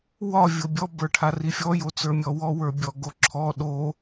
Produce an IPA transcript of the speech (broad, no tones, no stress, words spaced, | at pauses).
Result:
wɒ vʲobʲɔ bə˞ʈʰarifʲɔ jot͡sə˞mʲɔwɔ wə˞bʲɔɡoǁʰɔ ɗo